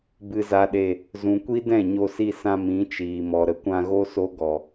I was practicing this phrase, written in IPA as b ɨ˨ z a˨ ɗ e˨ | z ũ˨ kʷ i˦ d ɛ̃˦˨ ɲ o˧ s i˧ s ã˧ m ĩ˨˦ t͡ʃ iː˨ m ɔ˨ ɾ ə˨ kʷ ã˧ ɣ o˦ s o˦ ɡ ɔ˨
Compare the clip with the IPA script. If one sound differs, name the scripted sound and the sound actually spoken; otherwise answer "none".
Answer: none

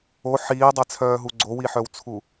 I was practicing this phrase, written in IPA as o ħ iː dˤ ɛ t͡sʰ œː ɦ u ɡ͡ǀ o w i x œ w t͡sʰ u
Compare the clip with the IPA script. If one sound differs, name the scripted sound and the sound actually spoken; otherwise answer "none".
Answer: x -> ħ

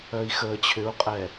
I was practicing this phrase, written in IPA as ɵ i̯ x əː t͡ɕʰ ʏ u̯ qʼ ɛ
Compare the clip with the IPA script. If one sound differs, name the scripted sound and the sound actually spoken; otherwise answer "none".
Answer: ɵ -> œ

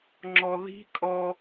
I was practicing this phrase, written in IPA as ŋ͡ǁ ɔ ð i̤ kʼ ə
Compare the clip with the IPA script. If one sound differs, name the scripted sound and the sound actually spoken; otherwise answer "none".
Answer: ə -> ɔ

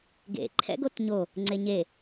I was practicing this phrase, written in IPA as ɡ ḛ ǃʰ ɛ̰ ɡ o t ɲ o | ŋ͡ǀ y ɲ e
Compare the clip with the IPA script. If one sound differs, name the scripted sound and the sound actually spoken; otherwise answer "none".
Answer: y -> e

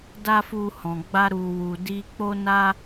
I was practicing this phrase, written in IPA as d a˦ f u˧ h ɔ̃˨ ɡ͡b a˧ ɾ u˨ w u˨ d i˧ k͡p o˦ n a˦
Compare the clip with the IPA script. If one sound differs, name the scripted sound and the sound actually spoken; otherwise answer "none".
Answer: none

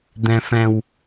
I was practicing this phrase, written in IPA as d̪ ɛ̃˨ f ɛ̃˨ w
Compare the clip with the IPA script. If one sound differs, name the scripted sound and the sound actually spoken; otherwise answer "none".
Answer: none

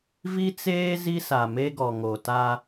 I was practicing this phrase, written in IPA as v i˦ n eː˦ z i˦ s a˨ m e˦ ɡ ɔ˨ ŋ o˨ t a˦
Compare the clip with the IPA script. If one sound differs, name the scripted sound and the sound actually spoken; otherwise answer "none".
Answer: n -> t͡s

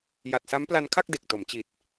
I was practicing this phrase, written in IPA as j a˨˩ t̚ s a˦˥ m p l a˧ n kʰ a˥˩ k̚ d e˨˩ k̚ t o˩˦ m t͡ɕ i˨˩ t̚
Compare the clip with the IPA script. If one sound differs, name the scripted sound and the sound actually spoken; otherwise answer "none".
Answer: none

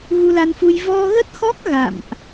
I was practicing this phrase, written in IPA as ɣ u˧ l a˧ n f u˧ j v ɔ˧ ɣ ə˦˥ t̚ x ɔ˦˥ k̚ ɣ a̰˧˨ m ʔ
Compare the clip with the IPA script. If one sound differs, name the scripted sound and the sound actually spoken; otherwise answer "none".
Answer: none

